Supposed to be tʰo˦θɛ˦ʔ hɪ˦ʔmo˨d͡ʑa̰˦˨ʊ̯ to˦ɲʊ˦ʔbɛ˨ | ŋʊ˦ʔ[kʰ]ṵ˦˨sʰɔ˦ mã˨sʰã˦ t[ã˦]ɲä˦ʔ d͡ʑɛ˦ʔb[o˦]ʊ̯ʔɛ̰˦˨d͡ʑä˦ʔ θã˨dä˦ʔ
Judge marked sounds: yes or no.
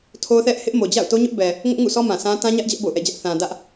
no, yes, no

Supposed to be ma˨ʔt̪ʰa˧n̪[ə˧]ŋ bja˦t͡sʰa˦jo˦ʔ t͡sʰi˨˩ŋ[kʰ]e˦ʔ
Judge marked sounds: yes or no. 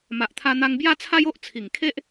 no, yes

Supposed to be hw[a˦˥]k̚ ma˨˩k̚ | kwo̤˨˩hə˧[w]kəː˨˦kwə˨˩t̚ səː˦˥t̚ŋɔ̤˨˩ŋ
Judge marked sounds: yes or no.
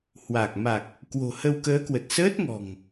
no, yes

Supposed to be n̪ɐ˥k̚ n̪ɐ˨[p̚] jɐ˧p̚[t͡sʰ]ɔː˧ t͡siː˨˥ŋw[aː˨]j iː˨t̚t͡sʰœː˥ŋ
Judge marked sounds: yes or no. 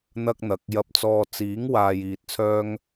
no, no, yes

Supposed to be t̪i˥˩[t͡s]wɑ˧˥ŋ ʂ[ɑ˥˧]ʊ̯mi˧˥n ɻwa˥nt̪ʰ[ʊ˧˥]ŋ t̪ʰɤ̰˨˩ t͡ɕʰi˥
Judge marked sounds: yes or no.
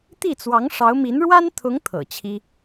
yes, no, yes

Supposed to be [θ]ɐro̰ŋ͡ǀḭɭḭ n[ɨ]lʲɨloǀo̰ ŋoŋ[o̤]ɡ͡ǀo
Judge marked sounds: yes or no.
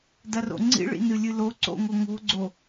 no, yes, yes

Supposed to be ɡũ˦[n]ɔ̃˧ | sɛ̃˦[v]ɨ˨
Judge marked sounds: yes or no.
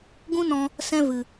yes, yes

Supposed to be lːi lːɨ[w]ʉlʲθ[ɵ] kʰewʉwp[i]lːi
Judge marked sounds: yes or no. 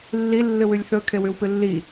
yes, yes, no

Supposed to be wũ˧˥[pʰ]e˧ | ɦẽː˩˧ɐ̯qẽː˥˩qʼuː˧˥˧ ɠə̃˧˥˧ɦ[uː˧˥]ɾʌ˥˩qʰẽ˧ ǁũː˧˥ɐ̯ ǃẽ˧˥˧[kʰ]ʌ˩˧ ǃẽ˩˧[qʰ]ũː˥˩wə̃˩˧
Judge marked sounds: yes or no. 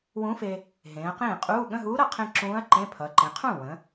no, yes, no, yes

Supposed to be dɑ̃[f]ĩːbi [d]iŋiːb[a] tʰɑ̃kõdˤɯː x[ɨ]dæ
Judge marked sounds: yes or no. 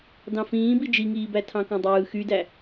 yes, no, no, no

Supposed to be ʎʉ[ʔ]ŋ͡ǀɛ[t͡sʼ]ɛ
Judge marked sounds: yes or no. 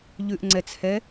yes, no

